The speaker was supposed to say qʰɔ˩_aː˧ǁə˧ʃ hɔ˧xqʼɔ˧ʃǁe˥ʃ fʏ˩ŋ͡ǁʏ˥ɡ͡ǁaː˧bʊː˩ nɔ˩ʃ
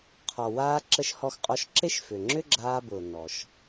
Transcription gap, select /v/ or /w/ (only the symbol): w